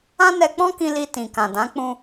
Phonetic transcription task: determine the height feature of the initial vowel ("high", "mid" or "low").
low